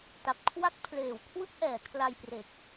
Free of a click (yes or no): yes